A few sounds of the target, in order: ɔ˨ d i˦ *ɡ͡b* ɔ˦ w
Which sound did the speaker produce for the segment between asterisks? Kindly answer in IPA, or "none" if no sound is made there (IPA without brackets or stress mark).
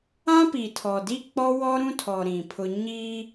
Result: k͡p